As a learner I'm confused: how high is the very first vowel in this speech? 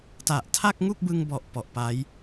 low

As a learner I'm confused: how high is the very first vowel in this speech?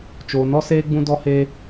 mid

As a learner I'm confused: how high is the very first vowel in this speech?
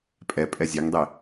mid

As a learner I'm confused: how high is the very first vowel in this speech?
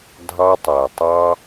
low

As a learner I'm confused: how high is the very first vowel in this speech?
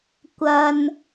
low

